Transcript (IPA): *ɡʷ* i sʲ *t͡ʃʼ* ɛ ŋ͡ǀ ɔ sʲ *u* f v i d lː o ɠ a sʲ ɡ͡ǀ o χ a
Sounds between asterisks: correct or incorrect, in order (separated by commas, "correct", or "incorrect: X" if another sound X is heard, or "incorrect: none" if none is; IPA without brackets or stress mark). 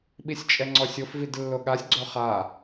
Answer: incorrect: ɓ, correct, incorrect: ʊ